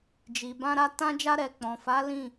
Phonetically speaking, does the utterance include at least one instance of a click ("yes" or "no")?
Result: no